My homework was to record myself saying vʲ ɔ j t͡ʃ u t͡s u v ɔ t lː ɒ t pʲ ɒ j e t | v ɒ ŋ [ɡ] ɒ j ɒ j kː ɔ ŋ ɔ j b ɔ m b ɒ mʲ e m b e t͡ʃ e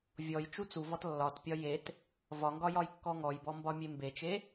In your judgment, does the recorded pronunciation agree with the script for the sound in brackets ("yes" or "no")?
yes